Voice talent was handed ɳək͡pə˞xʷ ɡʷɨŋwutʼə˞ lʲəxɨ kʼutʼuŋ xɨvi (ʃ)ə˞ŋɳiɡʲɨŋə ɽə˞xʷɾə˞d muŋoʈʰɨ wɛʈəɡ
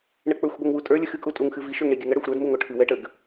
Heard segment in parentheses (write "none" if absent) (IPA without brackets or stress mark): ʃ